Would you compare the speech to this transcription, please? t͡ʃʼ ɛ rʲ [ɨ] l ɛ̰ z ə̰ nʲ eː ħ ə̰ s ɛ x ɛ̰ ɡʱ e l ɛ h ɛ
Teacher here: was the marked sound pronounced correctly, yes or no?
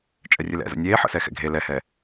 yes